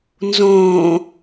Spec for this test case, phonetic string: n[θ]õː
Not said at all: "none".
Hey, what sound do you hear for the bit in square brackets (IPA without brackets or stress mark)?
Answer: z